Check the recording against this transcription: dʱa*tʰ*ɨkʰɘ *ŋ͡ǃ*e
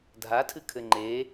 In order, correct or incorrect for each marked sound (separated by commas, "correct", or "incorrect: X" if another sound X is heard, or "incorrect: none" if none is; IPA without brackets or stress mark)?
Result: correct, correct